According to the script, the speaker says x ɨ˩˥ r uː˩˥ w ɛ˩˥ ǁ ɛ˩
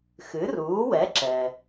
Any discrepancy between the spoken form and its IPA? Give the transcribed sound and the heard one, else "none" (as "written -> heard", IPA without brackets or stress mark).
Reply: none